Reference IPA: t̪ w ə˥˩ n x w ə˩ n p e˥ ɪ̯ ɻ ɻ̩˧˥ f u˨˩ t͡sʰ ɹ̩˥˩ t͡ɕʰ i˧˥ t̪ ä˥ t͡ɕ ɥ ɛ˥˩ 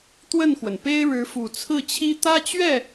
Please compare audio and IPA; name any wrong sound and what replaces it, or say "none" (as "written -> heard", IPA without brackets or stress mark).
i˧˥ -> i˥